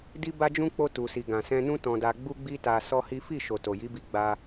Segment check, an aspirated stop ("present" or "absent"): absent